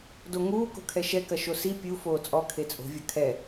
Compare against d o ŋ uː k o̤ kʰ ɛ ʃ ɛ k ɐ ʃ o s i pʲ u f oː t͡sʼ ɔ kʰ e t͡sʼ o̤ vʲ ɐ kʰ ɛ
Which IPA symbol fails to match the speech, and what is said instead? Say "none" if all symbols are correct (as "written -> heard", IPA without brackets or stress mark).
none